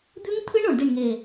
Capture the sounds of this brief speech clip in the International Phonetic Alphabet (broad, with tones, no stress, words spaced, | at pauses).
d̪ʉ˦˥ŋt̪ʰɨ˦˥ɳ o˧˩ɳdi˥˩ɳŋe˧˩